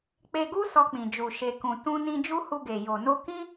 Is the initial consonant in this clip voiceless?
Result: yes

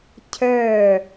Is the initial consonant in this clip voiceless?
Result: yes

